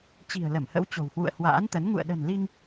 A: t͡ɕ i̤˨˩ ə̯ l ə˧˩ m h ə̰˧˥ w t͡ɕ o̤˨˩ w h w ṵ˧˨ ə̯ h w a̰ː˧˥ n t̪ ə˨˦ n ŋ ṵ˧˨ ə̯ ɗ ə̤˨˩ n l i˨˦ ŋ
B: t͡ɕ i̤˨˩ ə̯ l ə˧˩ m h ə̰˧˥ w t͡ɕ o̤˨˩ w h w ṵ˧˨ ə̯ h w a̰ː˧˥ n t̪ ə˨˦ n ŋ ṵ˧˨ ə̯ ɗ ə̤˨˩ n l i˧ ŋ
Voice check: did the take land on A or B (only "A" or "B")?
B